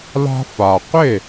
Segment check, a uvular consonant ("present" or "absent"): present